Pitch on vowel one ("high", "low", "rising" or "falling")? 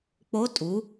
rising